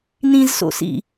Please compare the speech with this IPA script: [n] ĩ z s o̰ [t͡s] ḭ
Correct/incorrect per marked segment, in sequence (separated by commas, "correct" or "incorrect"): correct, incorrect